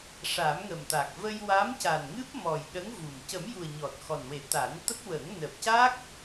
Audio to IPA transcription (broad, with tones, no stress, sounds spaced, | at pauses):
ʂ a˨˩˦ m ŋ ə˨˩ m t̪ a˨˩ k̚ v ə˧ j w a˧˥ m c a˨˩ n ŋ ɨ˦˥ p̚ m ɔ˨˩ j ɗ ə˧˥ ŋ v u˨˩ m c ə˨˩˦ m j u˨˩ ə̯ ɲ ɔ˨˩ t̚ x ɔ˨˩ n w e˨˩˦ t̪ a˨˩˦ n t̪ ə˦˥ k̚ w ə˨˩˦ ŋ n əː˨˩ p̚ c a˦˥ k̚